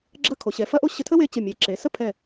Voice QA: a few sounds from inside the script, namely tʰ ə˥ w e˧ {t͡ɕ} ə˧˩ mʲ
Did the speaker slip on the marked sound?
no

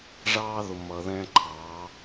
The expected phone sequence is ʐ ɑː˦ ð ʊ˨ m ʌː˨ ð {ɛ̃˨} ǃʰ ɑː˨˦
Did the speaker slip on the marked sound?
yes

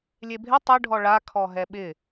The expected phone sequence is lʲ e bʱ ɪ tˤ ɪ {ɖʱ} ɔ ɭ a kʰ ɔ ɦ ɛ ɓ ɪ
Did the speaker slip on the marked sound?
no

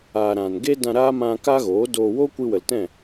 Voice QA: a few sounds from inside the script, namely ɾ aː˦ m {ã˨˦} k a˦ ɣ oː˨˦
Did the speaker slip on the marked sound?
yes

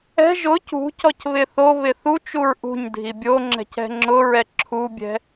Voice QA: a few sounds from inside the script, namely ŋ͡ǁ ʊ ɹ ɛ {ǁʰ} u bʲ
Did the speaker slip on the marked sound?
no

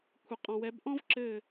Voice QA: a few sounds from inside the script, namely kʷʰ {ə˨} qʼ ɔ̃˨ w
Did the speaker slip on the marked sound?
no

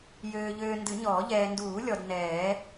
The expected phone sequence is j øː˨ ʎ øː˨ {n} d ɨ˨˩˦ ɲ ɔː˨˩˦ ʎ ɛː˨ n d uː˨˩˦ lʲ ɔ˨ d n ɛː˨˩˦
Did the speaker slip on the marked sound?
no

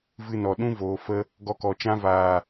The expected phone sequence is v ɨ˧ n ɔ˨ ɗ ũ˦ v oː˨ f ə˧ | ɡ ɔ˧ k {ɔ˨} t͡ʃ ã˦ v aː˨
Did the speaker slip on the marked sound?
no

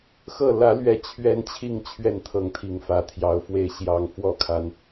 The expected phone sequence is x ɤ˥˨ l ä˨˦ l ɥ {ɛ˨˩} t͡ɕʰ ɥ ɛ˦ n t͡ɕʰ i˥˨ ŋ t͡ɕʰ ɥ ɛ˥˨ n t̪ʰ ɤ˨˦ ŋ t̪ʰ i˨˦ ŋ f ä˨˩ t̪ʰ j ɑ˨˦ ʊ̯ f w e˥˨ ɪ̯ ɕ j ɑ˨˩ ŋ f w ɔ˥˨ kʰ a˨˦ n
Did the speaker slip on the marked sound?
no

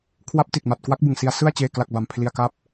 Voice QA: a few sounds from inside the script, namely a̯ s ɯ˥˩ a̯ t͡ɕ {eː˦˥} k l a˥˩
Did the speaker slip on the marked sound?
yes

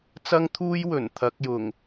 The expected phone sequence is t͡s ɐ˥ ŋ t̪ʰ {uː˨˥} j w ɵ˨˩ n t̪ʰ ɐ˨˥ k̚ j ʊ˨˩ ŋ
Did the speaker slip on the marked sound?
yes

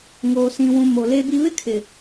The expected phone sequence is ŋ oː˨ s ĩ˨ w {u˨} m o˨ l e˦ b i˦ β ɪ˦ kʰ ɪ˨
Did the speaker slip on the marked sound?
yes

